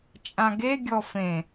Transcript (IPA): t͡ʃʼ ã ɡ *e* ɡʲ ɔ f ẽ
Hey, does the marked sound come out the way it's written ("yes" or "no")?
yes